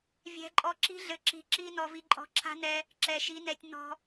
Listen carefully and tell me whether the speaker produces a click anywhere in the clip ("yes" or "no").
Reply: yes